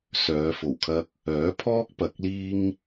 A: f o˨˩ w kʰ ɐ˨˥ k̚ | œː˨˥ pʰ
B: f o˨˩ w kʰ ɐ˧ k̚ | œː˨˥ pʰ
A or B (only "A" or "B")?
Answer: B